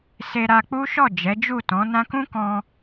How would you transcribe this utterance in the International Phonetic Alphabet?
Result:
s e˧ ɾ a˧ k͡p u˦ ʃ ɔ˦˨ d͡ʒ ɛ˨˦ d͡ʒ u˦˨ t ɔ̃˨˦ n ã˧ k ũ˦ k ɔ̃˧

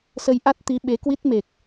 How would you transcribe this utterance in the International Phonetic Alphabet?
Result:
s ə˧ j ʔ a˦˥ t̚ t̪ i˨˦ ɓ e˨˦ k w i˦˥ t̚ m e˨˩ k̚

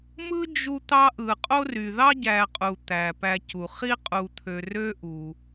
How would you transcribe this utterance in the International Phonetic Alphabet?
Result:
m ɯ˦ d͡ʒ u˦ t̪ ɑ˦ ʔ ɯ˩ qʼ o˥ r y˩ ð ɑ˥ ɟ æ˨ qʼ u˩ t̪ æ˩ p æ˨ c u˩ χ i˥ qʼ u˨ t̪ʰ ø˨ r ø˦ ʔ u˩

